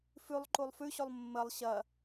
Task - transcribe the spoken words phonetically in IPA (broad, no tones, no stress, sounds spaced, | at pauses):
f ʉ lˠ ǃ u lˠ f ʉ ɕ o lˠ mː ə lˠ ɕ ɐ